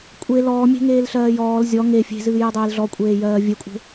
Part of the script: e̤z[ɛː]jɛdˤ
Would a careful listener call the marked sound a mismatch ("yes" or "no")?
yes